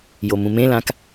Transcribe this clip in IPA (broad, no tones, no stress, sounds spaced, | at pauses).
j o m ũ m ẽ l ã k